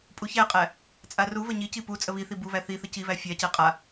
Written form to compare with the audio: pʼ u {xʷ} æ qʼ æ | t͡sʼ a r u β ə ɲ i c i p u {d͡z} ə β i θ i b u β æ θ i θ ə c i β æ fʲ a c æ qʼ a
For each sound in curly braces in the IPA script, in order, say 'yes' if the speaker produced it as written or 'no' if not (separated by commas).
no, no